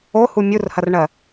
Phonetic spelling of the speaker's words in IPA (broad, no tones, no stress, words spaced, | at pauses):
ohu mʲurhɐrɳɜ